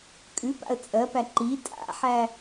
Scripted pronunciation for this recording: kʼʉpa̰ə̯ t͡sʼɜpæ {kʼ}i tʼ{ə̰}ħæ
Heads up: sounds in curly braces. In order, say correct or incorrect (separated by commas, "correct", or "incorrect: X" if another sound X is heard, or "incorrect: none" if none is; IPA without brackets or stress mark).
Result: incorrect: ǃ, incorrect: a̰